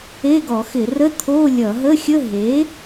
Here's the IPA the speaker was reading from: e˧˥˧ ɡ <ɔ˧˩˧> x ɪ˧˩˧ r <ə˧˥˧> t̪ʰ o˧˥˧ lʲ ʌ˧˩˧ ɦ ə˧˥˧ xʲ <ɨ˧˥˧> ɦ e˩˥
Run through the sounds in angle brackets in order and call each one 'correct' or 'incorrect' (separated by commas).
correct, correct, incorrect